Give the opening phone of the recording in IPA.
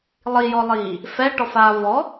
lˠ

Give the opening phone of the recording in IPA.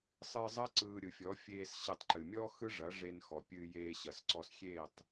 sˤ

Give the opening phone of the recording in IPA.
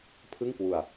pʰ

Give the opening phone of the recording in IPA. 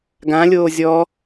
ɡ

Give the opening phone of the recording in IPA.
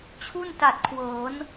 t͡ɕʰ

